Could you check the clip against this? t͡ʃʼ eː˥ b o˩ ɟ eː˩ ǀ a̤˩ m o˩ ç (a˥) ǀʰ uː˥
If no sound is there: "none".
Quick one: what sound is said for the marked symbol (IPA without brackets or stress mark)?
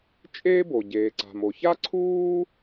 a˥